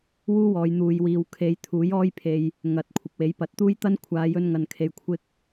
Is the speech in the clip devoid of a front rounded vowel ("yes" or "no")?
yes